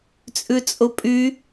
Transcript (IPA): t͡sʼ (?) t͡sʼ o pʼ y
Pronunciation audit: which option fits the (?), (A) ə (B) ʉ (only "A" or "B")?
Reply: B